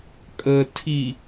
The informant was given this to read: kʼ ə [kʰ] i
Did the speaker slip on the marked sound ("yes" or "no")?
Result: yes